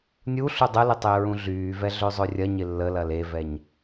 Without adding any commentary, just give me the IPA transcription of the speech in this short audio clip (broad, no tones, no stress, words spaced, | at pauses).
nʲu ɬudˤəlɪ tˤɪːɹũɮyːvɛ ɮøzˤørʲɐɲɪ lːəlɐl evɛɲ